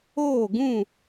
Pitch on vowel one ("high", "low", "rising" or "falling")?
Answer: falling